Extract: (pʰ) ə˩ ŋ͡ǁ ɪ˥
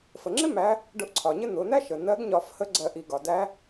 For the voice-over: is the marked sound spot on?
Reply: no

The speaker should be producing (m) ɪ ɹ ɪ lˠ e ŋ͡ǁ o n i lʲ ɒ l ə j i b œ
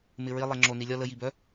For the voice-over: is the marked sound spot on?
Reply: yes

